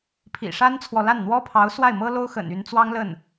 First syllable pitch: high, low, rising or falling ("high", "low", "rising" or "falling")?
low